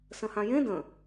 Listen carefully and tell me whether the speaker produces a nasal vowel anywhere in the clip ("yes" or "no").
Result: yes